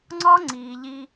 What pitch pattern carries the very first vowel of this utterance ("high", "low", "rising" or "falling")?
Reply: high